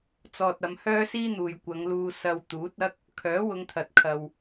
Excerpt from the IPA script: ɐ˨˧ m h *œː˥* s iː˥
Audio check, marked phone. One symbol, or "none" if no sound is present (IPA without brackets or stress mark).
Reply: œː˥